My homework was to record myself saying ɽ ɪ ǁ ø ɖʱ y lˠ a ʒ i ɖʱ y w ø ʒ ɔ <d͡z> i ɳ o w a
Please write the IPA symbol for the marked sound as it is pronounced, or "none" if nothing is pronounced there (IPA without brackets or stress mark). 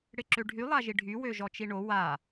t͡ʃ